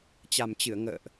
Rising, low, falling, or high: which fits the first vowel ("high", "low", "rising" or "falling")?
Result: low